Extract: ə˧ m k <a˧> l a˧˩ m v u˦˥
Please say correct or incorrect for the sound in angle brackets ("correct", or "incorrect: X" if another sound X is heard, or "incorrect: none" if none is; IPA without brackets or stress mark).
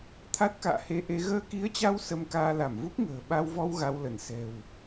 incorrect: aː˧